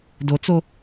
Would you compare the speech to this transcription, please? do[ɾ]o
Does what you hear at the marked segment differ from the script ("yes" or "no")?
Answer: yes